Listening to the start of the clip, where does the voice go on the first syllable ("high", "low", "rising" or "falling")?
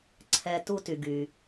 low